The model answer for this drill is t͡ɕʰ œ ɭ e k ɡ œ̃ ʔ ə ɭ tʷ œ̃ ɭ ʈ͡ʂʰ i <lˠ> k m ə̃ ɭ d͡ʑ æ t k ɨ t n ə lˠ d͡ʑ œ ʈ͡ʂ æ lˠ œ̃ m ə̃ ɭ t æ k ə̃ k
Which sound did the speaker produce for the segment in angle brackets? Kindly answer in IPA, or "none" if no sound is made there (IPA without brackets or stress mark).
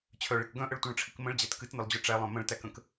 none